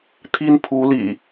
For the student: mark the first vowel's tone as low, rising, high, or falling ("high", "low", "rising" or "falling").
high